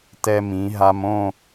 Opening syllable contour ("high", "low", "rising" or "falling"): high